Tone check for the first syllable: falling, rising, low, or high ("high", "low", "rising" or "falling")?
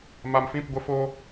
low